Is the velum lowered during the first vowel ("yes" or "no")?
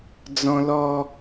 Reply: yes